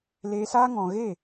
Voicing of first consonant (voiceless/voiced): voiced